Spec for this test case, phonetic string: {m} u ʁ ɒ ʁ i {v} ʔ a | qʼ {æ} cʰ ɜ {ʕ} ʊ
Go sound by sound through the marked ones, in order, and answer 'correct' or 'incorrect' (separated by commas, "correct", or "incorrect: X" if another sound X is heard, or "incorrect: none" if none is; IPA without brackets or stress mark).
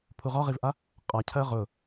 incorrect: pʰ, correct, incorrect: a, incorrect: ʁ